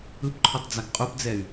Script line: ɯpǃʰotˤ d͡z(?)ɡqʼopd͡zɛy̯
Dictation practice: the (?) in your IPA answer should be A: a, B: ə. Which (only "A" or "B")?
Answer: A